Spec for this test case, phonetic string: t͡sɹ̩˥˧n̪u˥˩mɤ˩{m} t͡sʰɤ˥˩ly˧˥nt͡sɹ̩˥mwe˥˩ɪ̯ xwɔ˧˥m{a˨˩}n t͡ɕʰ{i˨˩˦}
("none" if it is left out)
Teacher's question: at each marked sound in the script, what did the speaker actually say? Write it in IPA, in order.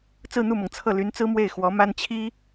ŋ, a˥, i˥

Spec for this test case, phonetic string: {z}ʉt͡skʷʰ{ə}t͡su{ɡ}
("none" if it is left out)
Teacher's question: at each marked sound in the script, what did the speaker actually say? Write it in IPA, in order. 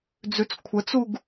d͡z, ə, ɡ

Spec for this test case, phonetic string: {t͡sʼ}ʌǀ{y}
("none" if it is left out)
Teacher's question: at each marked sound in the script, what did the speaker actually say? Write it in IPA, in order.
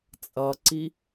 t͡sʼ, i

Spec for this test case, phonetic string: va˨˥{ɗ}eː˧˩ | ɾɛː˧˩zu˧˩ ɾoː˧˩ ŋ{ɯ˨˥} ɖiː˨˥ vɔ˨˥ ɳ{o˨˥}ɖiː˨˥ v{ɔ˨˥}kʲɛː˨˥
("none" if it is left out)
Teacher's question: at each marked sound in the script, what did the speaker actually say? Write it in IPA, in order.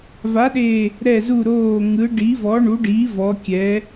ɗ, ɯ˨˥, u˨˥, ɔ˨˥

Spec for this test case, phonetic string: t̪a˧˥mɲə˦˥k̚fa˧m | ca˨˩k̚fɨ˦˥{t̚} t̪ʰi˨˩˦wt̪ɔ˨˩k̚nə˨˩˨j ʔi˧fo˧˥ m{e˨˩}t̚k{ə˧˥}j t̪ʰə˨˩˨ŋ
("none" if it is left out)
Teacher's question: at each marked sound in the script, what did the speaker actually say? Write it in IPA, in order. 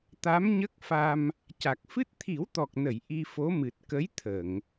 t̚, ɨ˨˩, ə˧˥

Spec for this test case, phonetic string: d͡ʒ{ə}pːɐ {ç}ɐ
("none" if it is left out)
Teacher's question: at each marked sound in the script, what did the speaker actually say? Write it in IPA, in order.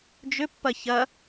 ʏ, ç

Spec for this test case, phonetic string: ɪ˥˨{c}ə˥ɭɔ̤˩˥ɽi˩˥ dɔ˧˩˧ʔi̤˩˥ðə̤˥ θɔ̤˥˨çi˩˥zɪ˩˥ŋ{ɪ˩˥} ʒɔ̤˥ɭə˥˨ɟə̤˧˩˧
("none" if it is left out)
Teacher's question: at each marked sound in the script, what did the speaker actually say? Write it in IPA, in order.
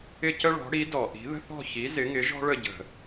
c, ɪ˩˥

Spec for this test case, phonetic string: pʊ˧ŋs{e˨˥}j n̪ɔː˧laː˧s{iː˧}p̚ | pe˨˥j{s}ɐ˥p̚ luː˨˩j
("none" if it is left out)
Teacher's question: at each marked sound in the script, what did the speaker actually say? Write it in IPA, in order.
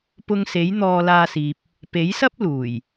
e˨˥, iː˨, s

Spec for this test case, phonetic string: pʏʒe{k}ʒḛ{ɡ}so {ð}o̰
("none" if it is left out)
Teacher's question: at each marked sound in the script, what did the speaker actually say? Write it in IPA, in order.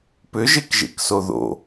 k, k, ð

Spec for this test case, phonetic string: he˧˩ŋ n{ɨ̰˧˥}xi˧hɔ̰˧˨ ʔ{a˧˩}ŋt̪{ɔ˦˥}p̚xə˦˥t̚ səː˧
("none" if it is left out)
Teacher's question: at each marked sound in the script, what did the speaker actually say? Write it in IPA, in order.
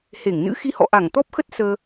ɨ̰˧˥, a˧˩, ɔ˦˥

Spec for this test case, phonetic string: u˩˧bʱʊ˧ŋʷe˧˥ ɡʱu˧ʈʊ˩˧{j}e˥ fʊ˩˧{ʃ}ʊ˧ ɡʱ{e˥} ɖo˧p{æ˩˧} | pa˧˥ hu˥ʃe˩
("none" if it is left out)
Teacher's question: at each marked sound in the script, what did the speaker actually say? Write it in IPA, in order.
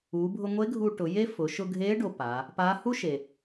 j, ʃ, e˧˥, a˩˧

